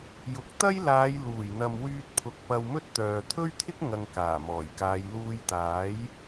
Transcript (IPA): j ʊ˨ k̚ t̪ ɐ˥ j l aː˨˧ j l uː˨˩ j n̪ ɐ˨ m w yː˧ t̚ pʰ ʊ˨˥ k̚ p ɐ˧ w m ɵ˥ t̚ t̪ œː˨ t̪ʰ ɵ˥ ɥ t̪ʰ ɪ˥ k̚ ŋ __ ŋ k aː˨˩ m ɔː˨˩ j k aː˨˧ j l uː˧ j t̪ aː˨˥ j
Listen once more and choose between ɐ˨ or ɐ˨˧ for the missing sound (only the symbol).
ɐ˨